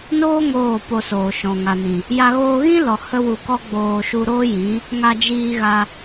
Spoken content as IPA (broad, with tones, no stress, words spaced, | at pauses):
noː˦ ŋoː˦˨po˧soː˨ʃɔ̃˨ ŋa˨nĩ˨ | ja˦ ɣoː˧ɣĩ˦lɔ˨ hə˦wu˧kɔ˦ ɡ͡boː˧ʃu˧ɾoː˦jĩ˨˦ | ŋa˧d͡ʒiː˧ɣa˧